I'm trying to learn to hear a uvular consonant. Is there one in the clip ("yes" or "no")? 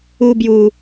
no